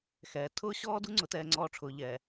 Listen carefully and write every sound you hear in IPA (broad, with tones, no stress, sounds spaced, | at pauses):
x ɛː˨ tʰ ʊː˦ ɕ ɔː˦ d u˦ ŋ͡ǀ ʊ˨ t ɛː˨ ŋ͡ǀ ɔː˨ ʈ͡ʂʰ ʊː˨ ʎ ɛː˨